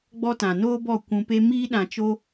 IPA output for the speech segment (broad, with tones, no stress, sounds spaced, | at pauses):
ɡ͡b ɔ˦ t ã˨ n oː˦ b ɔ˦˨ kʷ ũ˧ p e˦ m iː˦ ɗ ã˧ t͡ʃ o˦